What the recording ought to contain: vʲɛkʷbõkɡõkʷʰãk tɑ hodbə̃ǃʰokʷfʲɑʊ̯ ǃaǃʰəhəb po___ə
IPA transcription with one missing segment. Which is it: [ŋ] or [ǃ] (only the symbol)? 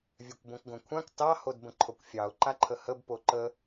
ǃ